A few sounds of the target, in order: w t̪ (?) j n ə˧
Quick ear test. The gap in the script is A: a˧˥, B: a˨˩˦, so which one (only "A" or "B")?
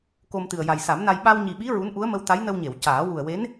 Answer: A